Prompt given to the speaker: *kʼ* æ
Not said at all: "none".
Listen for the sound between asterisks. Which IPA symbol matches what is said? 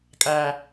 kʼ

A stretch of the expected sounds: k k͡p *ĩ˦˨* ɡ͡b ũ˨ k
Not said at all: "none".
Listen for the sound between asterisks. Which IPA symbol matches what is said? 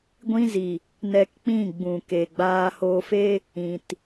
ĩ˦˨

